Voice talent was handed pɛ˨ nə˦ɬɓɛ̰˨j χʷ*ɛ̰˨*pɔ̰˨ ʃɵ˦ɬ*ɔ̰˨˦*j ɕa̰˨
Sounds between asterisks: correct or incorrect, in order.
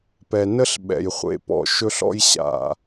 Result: incorrect: ḛ˨, incorrect: ɔ̰˦

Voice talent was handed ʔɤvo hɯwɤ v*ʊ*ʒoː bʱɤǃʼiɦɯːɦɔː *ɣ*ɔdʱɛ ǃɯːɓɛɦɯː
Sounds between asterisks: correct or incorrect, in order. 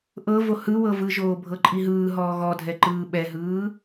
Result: incorrect: ɯ, correct

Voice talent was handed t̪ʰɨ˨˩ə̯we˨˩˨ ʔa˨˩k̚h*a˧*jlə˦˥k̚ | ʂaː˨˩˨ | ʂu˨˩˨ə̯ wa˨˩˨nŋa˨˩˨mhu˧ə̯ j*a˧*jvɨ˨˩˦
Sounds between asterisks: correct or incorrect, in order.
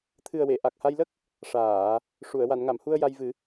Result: correct, correct

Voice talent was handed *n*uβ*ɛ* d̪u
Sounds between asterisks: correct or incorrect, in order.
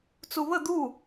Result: incorrect: t͡s, incorrect: ə

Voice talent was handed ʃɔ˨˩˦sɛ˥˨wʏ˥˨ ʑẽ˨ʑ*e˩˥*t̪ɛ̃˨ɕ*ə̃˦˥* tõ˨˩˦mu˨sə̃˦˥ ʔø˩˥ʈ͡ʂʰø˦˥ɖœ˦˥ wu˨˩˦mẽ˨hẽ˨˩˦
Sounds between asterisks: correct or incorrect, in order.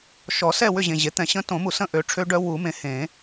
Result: correct, correct

